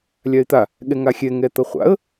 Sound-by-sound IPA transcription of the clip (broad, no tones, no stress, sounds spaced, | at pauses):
lʲ a ɪ̯ t̪ a | ɠ ɛ ŋ a xʲ ɛ ŋ ɛ t̪ ʌ χʷ a̰ ə̯